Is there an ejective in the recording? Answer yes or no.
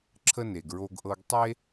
no